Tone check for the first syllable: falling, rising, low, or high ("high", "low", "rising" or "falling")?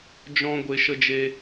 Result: high